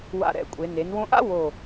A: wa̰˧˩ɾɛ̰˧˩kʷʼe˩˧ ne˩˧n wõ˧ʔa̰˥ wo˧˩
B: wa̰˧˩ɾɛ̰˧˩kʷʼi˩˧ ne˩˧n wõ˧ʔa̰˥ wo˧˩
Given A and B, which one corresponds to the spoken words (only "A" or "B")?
A